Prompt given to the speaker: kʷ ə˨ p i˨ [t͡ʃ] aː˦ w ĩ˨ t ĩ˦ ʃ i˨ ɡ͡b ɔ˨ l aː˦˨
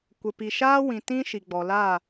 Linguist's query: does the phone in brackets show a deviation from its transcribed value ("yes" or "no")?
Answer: yes